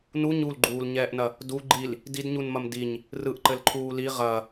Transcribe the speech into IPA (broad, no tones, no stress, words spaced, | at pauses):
nu ɲulɡ͡ǃuːlɲɛːʔnɐ | du ɡ͡ǃil | didɲunmɐm diɲ | rɯʔǃɘlǃʰuː li ʁɐ